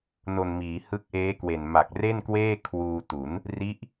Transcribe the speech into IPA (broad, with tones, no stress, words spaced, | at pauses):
no˨˩nmiː˩˦ hɯ˦˥k̚ʔeː˦˥kwe˨˩n ma˨˩k̚re˥˩nkweː˥˩ kʰwuː˧tu˩˦n | ri˦˥ʔ